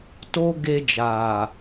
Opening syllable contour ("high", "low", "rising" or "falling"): high